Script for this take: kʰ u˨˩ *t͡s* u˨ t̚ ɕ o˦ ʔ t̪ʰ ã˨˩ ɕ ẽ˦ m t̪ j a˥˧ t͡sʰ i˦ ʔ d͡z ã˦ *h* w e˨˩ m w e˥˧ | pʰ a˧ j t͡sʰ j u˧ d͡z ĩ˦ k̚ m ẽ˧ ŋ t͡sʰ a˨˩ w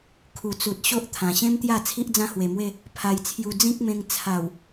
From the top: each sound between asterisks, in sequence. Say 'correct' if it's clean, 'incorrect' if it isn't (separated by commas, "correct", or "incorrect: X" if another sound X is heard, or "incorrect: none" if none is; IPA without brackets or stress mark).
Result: correct, correct